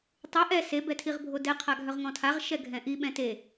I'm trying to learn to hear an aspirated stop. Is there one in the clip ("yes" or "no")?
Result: yes